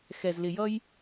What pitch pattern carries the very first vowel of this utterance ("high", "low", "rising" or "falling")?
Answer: low